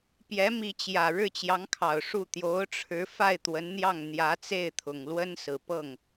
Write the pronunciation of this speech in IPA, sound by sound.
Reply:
p j ɛ˧˥ m i˧˥ t͡ɕ j ä˨˩ ɻ ɻ̩˥˩ t͡ɕ j ɑ˧˥ ŋ kʰ ɑ˨˩ ʊ̯ ʂ u˥˩ t̪ j o˧˥ ʊ̯ ʈ͡ʂʰ ɻ̩˧˥ f a˥˩ ɪ̯ t̪ w ə˧˥ n n̪ j ɑ˥˩ ŋ n̪ j ä˧˥ t͡s e˥˩ ɪ̯ t̪ʰ ʊ˨˩ ŋ l w ə˥ n s ɹ̩˨˩ p ɤ˥˩ ŋ

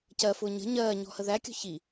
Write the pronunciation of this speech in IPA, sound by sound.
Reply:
c ɜ f ʊː ɲ ə̤ ɲ ɜː ɲ ɔ̤ h ə ð æ kʲ ɔ̤ ç i

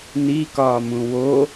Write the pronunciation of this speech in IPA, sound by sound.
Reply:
n i k ɒː m ũ w o

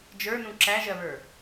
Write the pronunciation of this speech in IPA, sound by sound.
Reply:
d͡ʒ ə˞ n ũ ǁ æ ʒ ɜ β ə˞

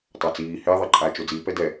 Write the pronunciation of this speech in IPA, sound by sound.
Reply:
tˤ a t͡s iː h ɪː ðˤ e ǃʼ aː t͡ʃ o d͡z iː p ɛ d ɛ

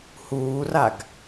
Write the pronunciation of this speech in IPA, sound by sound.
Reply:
h uː r a ɡ

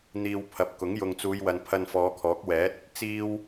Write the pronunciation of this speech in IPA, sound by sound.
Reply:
n̪ iː˧ w pʰ ɐ˨ p̚ k ʊ˨˥ ŋ j ʊ˨ ŋ t͡s uː˨˧ j w ɐ˨ n pʰ ɐ˧ n f ɔː˨˧ kʰ ɔː˨˥ k̚ w ɛː˨˥ t̚ | t͡s iː˥ w

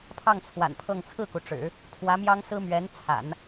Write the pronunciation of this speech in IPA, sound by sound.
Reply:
pʰ ɑ˥˩ ŋ t͡sʰ w a̰˨˩ n pʰ ɤ˥˧ ŋ t͡sʰ ɹ̩˥˩ k u˩ ʈ͡ʂ ɻ̩˨˩˦ | pʰ w ä˧˥ m j ɑ˥ ŋ s ɹ̩˥ m ɥ ɛ˧˥ n t͡sʰ a̰˨˩˦ n

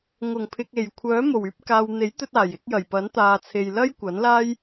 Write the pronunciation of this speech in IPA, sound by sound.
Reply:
ŋ ʊ˨˩ ŋ pʰ ɪ˨ k̚ e˨˩ j kʷʰ œː˨˥ m o˨˩ w yː˧ p̚ k aː˨ w n̪ e˨˥ j t̪ ɵ˧ t̚ aː˨˩ j ɪ˨˥ k̚ j ɐ˨˩ j p ɐ˨˥ n t̪ aː˨ t͡sʰ e˨ j l ɐ˥ j kʷ ɐ˨˥ n l aː˥ j

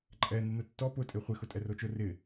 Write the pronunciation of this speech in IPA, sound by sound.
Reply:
ǃʼ ɛ n ɪ n ʊ tː ɔ p ʊ tʼ e χʷ ɪ x ʊ tʼ ɛ r o t͡ʃ ʊ r ɪ

